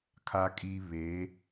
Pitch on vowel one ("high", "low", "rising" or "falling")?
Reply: high